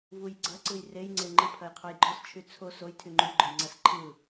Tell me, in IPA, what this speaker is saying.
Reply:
vujɡ͡ǀɐǀɯj rejŋ͡ǀeŋ͡ǃɯ pʰɐjqʰojɡ͡ǃɔs t͡ʃʰyt͡sʰo sojtʰy ŋ͡ǃyɡ͡ǃojŋ͡ǀas ǃʰɯ

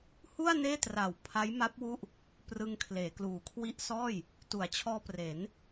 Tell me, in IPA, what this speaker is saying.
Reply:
hu˥˩a̯ neː˥˩tra˨˩w pʰa˦˥jma˦˥p̚wu˥˩ʔ | prɯ˧ŋkʰleː˩˦kluː˩˦ kʰwi˦˥ʔsɔː˥˩j | tu˩˦a̯t͡ɕʰɔː˧ pre˩˦n

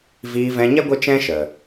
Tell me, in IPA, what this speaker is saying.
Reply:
viː˧vɛ̃˧ɲɛ˦ ɡʷə˦t͡ʃɛ̃˦ʃə˨

